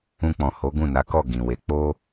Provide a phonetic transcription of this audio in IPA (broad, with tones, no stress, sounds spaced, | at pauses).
ũ˧ k͡p ɔ̃˨ h o˨˦ ɡ ũ˦˨ n a˨˦ k ɔ˦˨ ɡ ĩ˨ w e˨˦ k͡p o˦